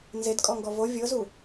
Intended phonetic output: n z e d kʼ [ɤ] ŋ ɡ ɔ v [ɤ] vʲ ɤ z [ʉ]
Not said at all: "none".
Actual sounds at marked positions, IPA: ɔ, o, u

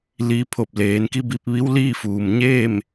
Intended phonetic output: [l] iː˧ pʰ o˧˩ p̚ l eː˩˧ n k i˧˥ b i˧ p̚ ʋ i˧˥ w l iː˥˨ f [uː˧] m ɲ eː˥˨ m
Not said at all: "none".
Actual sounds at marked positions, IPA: l, uː˩

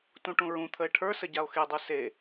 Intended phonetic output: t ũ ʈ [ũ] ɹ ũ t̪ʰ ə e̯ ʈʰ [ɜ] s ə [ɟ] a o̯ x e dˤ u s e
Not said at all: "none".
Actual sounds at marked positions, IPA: ũ, ə˞, ɟ

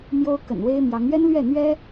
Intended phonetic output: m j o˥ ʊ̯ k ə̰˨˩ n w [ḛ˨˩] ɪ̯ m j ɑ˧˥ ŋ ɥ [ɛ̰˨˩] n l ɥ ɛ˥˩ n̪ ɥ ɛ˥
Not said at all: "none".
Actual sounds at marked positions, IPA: e˥, ɛ˥

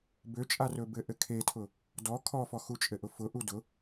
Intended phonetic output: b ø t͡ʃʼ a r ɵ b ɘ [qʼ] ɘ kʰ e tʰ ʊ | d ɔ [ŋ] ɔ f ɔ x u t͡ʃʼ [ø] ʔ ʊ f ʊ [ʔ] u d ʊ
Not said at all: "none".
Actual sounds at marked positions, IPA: ʔ, kʰ, ɘ, ʔ

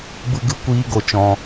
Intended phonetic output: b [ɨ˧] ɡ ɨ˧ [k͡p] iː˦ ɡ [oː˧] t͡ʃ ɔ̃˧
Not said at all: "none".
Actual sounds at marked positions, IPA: ɨ˧, kʷ, o˧

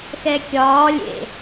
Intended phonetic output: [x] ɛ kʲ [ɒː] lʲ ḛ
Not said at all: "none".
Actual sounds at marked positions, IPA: x, ɒː

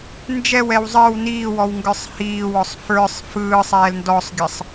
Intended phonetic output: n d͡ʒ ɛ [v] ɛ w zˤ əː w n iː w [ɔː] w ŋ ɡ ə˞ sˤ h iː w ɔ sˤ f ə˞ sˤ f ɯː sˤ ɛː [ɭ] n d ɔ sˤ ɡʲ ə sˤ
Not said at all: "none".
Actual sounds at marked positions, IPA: w, ɔ, l

